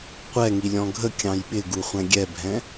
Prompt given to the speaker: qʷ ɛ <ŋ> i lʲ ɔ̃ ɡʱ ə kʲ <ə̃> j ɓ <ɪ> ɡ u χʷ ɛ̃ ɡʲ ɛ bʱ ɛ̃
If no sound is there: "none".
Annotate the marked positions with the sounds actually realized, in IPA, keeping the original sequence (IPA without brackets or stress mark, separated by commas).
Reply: ŋ, ɑ̃, ɪ